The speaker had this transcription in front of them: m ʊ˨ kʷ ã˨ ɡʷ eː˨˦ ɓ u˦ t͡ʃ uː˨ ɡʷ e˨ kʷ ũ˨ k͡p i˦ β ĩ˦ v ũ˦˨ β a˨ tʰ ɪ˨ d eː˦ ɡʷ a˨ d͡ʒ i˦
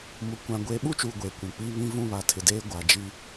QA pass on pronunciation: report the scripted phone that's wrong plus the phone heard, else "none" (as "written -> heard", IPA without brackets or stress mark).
none